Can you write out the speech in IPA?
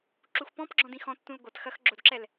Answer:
ǁuxpɔ̃pɡ͡ǁɔ̃d ĩxɔ̃tːũl ɡʷɐt xɐx ɡ͡ǁodǁɛl

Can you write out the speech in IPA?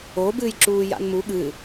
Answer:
obɨːjǁuː ja̰nmu ɠɨ

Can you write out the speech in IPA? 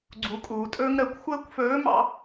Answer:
ɡ͡ǀu˩˧kʼuː˩tʼɵː˥ŋ ɾəː˩˧kʷ xʷəː˥kʷfɵː˧˥mɑ̰˧

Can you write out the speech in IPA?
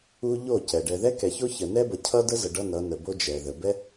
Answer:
u˦ ʎo˦˨cɛ˨ ɖɛ˨ðɛ˦kɛ˨ço˦ çə˨nɛ˦ bʌ˨cʰʌ˦də˦zə˨ ɖʌ˦nʌ˨˦nə˨bo˦ d͡ʒɛ˨ðə˨ bɛ˦

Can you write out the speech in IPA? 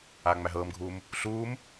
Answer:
aːŋ͡mæɦɤːmɡʱuːm | ɬuːm

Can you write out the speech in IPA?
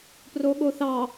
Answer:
proɠoθɑ

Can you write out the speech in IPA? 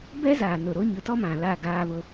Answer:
bɛ˦zaː˨ nʊ˨ɾo˦ ɲʊ˨˦tɔ˦mã˨laː˦˨ ɡaː˦βʊ˦

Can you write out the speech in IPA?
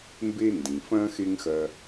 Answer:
mbe˦ndĩ˩ fɐ̃˦ xe˥ŋxɐ˦

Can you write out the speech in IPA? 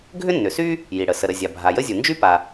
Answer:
ɡʱʏ˥nːʏ˩sy˥ | ji˩ɽə˩ sə˩ɾə˩ zʲa˩bʱa˩jə˥zʲu˩ nd͡ʒy˥pa˩

